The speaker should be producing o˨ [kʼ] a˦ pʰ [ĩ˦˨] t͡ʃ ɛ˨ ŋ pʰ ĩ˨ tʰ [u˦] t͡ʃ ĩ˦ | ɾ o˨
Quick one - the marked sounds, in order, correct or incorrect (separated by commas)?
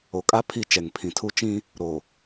correct, incorrect, correct